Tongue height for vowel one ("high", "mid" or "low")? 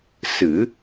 high